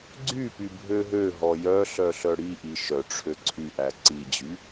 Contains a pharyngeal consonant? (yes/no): no